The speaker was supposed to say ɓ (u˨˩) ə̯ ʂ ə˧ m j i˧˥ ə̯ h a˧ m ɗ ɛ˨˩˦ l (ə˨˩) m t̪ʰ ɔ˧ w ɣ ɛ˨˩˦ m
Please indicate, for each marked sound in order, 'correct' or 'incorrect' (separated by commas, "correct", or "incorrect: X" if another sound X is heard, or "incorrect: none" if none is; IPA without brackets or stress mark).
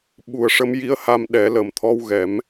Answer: correct, correct